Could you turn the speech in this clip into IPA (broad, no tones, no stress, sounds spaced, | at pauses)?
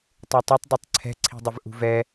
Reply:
tˤ u tˤ i tˤ dˤ u tˤ ǀʰ ɛ̤ ǀʰ i̤ dˤ ɪ v ʔ ṳ v ɛ